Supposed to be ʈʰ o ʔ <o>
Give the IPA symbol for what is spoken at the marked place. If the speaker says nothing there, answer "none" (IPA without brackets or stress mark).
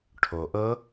ɤ